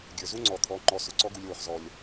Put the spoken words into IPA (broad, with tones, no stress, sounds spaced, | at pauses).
ɡʲ ə˞˨ z u˦ ŋ͡ǀ ɔ˨ t̪ʰ ɔ˨˦ ŋ͡ǃ ɔ˧ s ʊ˨ ǀ ɔ˦ ɡ u˧ lʲ w ʊ˨ χ z ɔ˨ lʲ